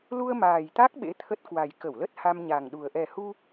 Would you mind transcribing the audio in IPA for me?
l u˧ ə̯ m aː˨˩ j t̪ a˦˥ k̚ ɓ ḛ˧˥ t̪ʰ ə˦˥ t̚ k w a˨˩ j k ə˧˩ w l ə˦˥ t̚ h a˧ m ɲ a˨˩ ŋ ɗ u˨˩ ə̯ ʔ ɛ˨˩ h u˧

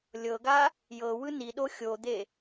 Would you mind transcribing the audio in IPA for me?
lʲ ɤ ɡ a | j ɤ w ɯ n i ɗ o xʲ o d̪ e

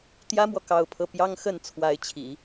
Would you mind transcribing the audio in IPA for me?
t̪ j ä˥ m w ɔ˨ k ɑ˥˧ ʊ̯ pʰ ɤ˥˩ p j ɑ˥ ŋ x ə˥˩ n t͡sʰ w a˧˥ ɪ̯ t͡ɕʰ ḭ˨˩˦

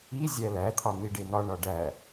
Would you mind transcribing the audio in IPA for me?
i zʲ æ l æ t̪ʰ ɒ n̪ i ɖ e n̪ ɒ ɳ ɒ ɖ æ

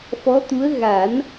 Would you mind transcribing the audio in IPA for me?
f ɔ˧˥ t̪ u˧˥ ə̯ ɣ a˨˩˦ n

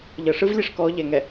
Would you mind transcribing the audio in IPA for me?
ʎ ɤ ʂ ɯ v lʲ e ʂ k ɔ ʎ ɛ ŋ ɛ

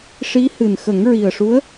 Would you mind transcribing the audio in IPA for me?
ʂ i˧˥ h ɨ˨˩ n x ə˨˩˦ ŋ ɹ i˨˩ ə̯ ʂ u˧˥ ə̯

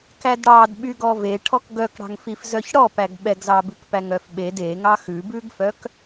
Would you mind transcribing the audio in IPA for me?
k æ d ɽ ɑ d ɓ y ɡ ɔ v e ʈʰ ɔ k ɡ œ k ɽ ɑ̤ ŋ f i f z œ ç ɽ ɔ p æ ɡ ɓ ɛ ɡ z ɑ b ʉ k p æ ŋ œ f ɓ e d e ŋ ɑ x ʉ b ʉ ɡ f œ k

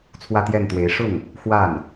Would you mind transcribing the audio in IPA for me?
t͡sʰ w ä˥˧ t̪ j ɛ˥˩ n t̪ w e˧˥ ɪ̯ ʂ ʊ˥˩ ŋ | x w a˥˩ n

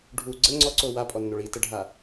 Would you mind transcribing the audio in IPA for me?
ɖʱ u ɡ͡ǀ ə ŋ͡ǀ ɔ ǀ o w a pʼ ɔ nː o ɭ i t ə ɖʱ a

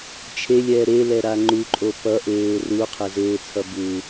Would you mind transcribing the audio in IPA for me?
t͡ʃʰ e lʲ ɛː ɾ e l ɛ ɾ a ŋ͡ǃ u ǃʼ o p ʌ ʔ eː r u qʰ ɛ z eː t͡sʰ ʌ b u

